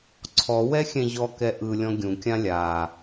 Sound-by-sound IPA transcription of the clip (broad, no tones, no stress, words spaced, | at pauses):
ǀʰɔwɛxʲɛ̃ ʑɔkɛ ʔɯlʲɔ̃ ɡʲũkʲã lʲa